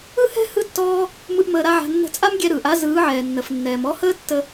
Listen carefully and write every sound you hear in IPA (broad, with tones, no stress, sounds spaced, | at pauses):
ɯ˦ h ɛ̤˦ h ɯ˦ tː ɔː˦ | m ɯ˦ ʔ m əː˧ ɾ a˦ ʕ a̤˧ nː ə̤˧ t͡sʼ a˦ m ɡʲ ɛ˧ ɾ ɯː˨ ʔ a˦ z ɯː˨˦ ʕ ɛː˨ nː ə˨ f nː ɛː˨ m ɔ˧ h əː˦ tː ə˧